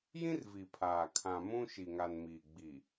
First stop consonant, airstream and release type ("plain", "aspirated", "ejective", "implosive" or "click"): aspirated